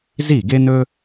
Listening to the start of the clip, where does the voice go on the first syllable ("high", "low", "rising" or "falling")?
falling